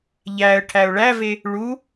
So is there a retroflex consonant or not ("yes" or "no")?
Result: yes